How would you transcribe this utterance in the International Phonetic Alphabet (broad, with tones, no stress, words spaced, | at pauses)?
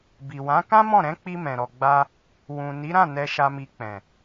bi˨wã˨˦ kã˦mɔ̃˦˨ɾɛ̃˨˦k͡pi˧ mɛ̃˨ɾɔ˨ɡ͡ba˧ | wũ˨ni˨˦ ɾã˦˨ nɛ˧ʃa˧mi˧k͡pɛ̃˨